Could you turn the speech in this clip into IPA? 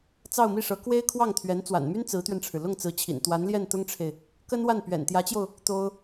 t͡sɑ˥˧ʊ̯mi˥˩ʂɤ˧˥ kwe˥ɪ̯kʰwɑ˥˩ŋt̪ʰɥɛ˧˥n t͡swa̰˨˩nmy˥n t͡sɹ̩˧˥t̪ɥɛ˧nʈ͡ʂʰɻ̩˩ lʊ˥˩ŋ t͡sɹ̩˧˥t͡ɕʰḭ˨˩n t̪wa˧˥nljɛ˥˩nt̪ʊ˥ŋʈ͡ʂʰe˨ɪ̯ | kə˥nwa˥˩n pɥɛ̰˨˩nt̪jä˧˥t͡ɕjo˧ʊ̯ | t̪o˥ʊ̯

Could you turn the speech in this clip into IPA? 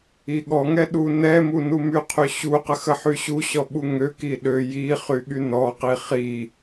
iɠɔŋɛ ɗunɛmu numyqʰy ɕuqəx əħyɕuɕɔ ɓuŋøki ɗø ji χyɠynɔqi χi

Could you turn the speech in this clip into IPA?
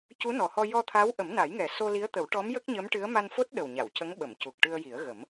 cu˧˥nɔ˨˩hɔ˧ jɔ˧t̪ʰa˧˥w ʔə˨˩˦mna˨˩˦jŋɛ˨˩ so˧li˧˥ə̯t̪ə˨˩˦wʈɔ˧˥m jə˦˥k̚ɲə˧˥mʈɨ˧˥ə̯ ma˧nfo˦˥t̚ɗə˨˩wɲa˨˩˨w cə˧˥ŋɓə˨˩˨mcu˨˩k̚ ʈɨ˧ə̯ji˨˩˦ə̯ɣə˨˩˦m

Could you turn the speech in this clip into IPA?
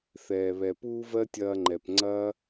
θɛː˨βɛ˨ puː˦vɜ˦tʲɐː˧ ŋ͡ǃɛ˨pŋ͡ǀɐː˦

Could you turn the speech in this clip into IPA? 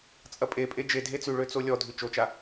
t͡sʼɐpʼepʼe d͡ʒe dʱet͡sʉɭø t͡solʲɔdʱʉ t͡ʃot͡ʃa

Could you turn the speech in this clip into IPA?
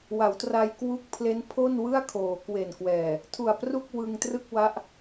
wa˩˦wtra˧j kwu˦˥k̚ pʰle˦˥npʰo˥˩n wɯ˥˩a̯kʰoː˩˦kwe˨˩nkwɛː˨˩ | tʰu˨˩a̯pru˥˩k̚ wɯ˧ŋtrɯ˥˩k̚wa˦˥ʔ

